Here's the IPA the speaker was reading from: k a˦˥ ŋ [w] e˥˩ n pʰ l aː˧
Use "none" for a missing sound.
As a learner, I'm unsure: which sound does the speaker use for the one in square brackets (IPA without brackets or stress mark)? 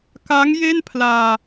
j